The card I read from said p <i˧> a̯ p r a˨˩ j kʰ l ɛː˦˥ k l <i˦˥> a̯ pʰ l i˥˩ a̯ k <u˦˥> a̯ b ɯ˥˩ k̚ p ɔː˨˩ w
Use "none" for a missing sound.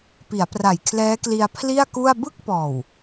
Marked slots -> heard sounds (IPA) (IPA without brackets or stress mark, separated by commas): i˩˦, i˧, u˥˩